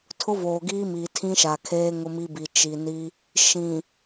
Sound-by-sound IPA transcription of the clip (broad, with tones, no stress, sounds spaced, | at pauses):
tʰ ʊ˦ v oː˨ ɡ iː˦ m iː˨ tʰ ĩ˦ ʃ a˨ kʰ eː˦ ŋ ʊ˦ m i˦ b i˨ t͡ʃ i˨ n i˦ | ʃ ĩ˨